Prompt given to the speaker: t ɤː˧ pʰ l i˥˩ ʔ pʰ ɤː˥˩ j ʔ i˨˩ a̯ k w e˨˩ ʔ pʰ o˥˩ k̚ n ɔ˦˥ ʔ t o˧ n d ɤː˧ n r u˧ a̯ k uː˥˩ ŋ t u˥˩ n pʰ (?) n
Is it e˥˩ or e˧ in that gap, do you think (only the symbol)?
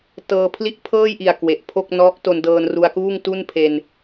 e˧